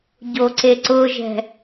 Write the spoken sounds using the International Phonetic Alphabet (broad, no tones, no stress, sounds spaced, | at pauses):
ɟ o ǀ e ǀ ʊ ʒ ɛ̤